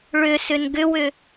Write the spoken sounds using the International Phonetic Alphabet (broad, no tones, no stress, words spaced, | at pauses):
ɭʏsʏn ɡʏwʏ